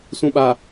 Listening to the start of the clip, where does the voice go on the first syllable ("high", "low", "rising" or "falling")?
low